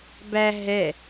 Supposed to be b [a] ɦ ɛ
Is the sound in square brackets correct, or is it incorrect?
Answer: incorrect